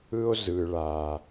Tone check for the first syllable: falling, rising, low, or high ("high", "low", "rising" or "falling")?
high